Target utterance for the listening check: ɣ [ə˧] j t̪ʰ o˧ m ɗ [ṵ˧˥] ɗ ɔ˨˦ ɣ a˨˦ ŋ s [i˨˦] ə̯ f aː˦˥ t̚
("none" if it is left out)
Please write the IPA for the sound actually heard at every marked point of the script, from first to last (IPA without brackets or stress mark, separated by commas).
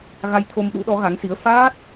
a˧, ṵ˧˥, i˨˦